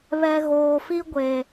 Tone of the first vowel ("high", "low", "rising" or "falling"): low